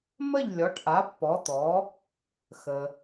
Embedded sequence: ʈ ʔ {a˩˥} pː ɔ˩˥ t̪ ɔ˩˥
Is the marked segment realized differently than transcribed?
no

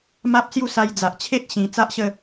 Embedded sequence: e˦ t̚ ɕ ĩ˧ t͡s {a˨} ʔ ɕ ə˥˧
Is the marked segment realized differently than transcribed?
yes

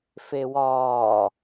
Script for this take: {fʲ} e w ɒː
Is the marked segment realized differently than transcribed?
yes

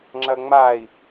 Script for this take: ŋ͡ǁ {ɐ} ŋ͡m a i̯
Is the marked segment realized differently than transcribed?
no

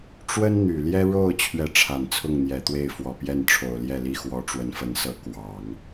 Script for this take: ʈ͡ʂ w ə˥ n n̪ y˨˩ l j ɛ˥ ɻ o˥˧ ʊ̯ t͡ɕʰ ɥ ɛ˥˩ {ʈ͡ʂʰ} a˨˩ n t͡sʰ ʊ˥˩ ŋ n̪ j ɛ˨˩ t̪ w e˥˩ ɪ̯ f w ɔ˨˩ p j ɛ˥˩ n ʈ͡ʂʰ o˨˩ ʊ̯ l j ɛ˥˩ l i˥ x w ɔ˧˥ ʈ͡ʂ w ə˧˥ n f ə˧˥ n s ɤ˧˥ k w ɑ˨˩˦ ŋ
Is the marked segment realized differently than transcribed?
no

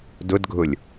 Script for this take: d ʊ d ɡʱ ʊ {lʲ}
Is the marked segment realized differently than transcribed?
no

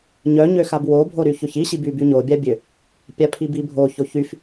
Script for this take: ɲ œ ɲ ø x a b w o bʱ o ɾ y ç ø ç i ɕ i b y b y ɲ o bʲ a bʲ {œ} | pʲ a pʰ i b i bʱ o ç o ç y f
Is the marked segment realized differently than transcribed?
yes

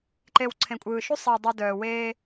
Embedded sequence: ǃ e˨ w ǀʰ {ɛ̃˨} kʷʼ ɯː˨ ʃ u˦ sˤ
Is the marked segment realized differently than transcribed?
yes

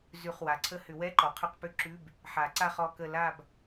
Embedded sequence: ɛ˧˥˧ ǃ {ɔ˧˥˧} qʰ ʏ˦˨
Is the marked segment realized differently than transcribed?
yes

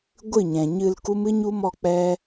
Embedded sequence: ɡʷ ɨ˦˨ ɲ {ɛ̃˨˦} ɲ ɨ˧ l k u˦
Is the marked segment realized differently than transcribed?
yes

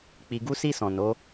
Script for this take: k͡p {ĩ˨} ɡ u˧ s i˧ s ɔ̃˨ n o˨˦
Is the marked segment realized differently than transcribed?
yes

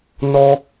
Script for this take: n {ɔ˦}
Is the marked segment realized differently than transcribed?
no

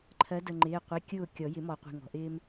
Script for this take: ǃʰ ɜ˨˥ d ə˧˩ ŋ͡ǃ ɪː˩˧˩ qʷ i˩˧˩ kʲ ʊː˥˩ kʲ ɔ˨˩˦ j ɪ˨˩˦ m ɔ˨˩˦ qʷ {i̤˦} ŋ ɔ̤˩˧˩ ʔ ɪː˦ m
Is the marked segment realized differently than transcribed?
yes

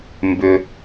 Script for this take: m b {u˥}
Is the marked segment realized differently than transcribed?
yes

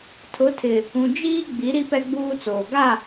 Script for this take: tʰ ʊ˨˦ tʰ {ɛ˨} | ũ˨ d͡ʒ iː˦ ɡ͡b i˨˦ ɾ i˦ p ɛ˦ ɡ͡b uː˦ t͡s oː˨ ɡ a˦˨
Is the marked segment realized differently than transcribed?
yes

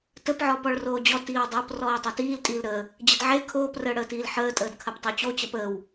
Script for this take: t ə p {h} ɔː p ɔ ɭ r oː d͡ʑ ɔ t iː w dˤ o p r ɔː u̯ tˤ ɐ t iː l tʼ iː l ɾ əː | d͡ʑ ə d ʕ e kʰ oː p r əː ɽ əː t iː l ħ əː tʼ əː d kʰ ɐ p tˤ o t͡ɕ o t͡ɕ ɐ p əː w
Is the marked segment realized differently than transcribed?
yes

